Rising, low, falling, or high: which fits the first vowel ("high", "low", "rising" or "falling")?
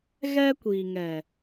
high